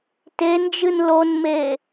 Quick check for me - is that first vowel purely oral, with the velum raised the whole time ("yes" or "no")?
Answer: yes